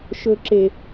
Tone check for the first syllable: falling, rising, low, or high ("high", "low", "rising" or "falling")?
high